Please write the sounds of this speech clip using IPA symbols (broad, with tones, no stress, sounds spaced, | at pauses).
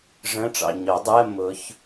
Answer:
ʐ ə̃˧˥˧ ʈ͡ʂ ɑ̰˨ ɲ ɒ˨˩˦ dˤ ɜ˧˥˧ m ʊ˨˥ ç